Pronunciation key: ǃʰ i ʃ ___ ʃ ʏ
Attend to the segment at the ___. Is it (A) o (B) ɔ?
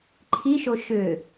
A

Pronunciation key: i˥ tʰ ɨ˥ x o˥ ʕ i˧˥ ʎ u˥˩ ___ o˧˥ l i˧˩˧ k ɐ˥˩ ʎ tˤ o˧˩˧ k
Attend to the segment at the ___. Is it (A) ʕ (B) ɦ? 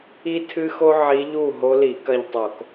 B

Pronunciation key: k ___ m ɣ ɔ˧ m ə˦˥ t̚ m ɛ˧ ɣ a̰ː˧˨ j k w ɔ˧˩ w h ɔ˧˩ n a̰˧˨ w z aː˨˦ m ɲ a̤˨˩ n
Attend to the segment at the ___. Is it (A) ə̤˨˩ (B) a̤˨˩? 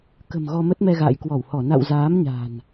A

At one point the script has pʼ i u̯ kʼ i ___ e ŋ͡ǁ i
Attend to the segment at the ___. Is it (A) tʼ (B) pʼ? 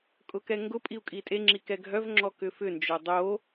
A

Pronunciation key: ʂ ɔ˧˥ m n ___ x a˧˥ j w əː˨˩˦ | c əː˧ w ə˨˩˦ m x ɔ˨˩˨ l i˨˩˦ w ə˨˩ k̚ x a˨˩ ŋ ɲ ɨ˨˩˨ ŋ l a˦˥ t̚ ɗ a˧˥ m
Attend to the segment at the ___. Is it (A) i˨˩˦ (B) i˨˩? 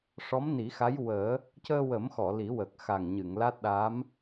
A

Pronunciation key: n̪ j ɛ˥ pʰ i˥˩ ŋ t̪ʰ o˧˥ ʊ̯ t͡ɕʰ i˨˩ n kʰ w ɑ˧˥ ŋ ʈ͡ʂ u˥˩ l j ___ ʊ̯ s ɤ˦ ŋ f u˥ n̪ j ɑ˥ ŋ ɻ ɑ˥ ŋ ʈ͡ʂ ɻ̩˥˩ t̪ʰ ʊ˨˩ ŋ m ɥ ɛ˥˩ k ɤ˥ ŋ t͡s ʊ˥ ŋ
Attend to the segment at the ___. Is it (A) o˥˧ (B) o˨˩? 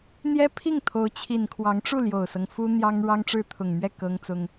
B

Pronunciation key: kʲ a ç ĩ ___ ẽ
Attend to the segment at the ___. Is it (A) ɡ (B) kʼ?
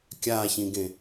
A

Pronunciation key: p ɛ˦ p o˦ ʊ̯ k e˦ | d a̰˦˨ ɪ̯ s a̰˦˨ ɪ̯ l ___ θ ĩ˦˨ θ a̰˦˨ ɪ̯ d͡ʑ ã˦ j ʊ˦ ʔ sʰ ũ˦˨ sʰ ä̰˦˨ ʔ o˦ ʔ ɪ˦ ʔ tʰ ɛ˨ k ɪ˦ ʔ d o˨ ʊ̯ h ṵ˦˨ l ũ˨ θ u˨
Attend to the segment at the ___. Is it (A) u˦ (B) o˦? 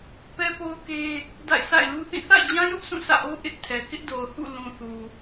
A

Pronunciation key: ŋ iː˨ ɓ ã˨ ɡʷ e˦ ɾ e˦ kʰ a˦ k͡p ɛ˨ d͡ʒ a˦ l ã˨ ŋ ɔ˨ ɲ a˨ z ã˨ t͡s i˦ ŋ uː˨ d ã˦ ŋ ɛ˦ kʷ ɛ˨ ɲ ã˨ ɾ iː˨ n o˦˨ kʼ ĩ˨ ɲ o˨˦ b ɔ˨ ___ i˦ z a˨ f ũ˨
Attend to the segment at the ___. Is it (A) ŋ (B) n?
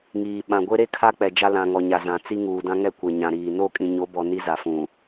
B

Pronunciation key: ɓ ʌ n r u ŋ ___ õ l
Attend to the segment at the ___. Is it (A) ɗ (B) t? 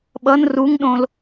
A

